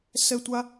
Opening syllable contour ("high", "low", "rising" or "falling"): high